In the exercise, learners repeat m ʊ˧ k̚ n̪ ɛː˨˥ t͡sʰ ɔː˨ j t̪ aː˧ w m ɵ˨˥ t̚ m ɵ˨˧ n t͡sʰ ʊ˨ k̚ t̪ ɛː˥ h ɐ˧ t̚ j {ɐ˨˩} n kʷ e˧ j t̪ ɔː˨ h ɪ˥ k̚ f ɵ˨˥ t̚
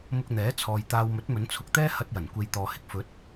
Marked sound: correct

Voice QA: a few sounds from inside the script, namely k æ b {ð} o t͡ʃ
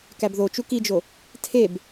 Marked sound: correct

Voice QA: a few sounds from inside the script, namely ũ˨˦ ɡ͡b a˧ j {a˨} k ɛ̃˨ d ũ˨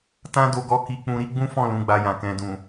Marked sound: incorrect: ã˨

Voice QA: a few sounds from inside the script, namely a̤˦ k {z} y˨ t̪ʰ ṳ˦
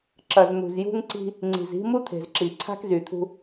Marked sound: correct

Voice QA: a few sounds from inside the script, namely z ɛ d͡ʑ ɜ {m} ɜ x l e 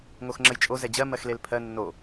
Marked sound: correct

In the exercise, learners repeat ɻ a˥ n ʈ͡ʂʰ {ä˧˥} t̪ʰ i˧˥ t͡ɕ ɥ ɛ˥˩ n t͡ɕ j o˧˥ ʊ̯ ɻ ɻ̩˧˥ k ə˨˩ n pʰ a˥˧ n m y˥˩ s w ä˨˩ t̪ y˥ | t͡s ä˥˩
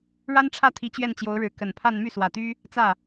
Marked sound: incorrect: ä˥˩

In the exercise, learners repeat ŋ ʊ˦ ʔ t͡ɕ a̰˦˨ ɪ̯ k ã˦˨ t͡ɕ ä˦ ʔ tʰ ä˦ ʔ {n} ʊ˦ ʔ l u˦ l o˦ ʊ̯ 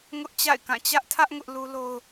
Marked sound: incorrect: ŋ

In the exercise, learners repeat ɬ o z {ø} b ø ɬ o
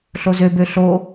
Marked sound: correct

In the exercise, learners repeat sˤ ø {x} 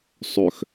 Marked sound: correct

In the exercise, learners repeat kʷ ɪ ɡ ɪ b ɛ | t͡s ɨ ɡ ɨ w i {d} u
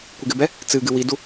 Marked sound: correct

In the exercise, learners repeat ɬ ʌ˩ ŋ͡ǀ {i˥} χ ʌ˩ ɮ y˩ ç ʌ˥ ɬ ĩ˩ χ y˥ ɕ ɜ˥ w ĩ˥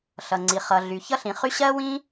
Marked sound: incorrect: i˩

